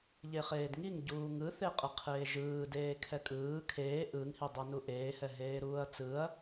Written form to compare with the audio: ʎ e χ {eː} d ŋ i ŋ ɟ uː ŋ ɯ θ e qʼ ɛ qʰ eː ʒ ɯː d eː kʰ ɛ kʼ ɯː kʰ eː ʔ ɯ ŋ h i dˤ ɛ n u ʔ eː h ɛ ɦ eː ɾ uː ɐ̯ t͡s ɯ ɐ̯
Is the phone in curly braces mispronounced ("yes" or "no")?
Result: no